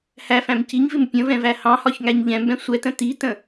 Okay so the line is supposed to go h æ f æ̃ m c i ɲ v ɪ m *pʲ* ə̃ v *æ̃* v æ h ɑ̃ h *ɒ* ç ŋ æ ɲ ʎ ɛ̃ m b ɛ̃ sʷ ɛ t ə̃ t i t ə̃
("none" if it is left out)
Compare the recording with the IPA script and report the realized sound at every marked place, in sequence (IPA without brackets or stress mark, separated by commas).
pʲ, ɛ̃, ɒ